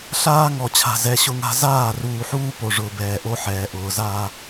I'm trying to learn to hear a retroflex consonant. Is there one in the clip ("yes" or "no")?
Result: yes